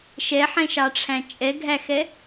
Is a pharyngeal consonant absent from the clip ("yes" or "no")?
no